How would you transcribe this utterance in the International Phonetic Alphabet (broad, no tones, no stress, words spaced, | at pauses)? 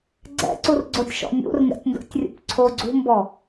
ɡ͡ǀɛ̰ǀurɡ͡ǀotʲʃɔ̰ nʲṵrŋɛ̰tʲndo̰tʲrʲṵp ǀʰoɡ͡ǀṳmbɔ